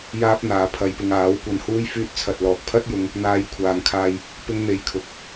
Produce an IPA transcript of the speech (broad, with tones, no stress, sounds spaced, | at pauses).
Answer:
j aː˥ p̚ n̪ aː˨˧ pʰ ɐ˧ j p ɪ˧ ŋ aː˨˥ w kʷ ɐ˧ n h uː˥ j f yː˧ t̚ t͡sʰ ɐ˨ t̚ l ɔː˨ k̚ pʰ ɐ˥ t̚ j ʊ˨˧ ŋ | n̪ aː˧ j kʷʰ aː˨ ŋ kʰ aː˧ j | p ɪ˥ ŋ n̪ e˧ j kʰ ʊ˧ k̚